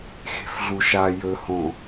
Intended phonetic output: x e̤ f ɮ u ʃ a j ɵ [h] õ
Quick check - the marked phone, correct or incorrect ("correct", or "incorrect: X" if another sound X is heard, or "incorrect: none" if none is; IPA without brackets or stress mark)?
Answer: correct